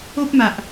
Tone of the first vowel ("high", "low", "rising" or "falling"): high